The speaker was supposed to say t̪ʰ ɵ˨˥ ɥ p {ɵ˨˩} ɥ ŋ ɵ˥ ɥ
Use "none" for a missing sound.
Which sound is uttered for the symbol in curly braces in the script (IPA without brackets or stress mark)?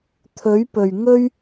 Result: ɵ˨˩